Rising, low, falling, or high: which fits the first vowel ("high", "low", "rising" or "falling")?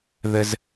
high